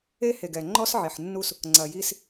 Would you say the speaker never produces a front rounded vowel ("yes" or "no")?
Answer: yes